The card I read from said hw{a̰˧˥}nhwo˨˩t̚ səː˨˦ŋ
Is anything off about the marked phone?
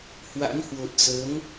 no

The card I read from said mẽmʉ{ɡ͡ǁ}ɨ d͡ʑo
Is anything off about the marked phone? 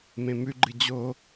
yes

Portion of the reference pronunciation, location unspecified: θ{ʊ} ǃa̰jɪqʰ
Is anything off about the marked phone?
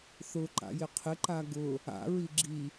no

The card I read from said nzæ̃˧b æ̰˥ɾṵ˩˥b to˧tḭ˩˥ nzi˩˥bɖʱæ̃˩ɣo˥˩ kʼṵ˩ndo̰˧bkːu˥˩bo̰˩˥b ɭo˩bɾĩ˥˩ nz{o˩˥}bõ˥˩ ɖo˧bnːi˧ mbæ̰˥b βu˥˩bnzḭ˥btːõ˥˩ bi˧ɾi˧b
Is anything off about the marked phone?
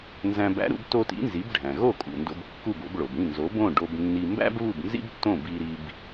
no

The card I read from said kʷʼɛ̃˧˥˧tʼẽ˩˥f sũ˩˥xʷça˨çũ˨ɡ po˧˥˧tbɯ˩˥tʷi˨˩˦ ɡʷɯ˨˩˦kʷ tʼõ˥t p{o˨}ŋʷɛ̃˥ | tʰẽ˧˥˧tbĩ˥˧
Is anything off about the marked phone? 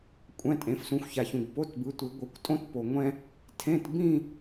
no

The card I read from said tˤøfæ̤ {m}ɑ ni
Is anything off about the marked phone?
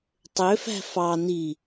yes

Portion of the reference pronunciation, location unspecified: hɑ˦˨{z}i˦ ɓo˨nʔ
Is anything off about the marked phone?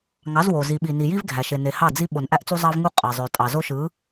yes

